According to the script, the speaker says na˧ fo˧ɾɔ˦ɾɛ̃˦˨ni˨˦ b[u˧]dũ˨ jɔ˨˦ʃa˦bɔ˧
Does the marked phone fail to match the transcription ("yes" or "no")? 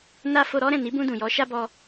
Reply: yes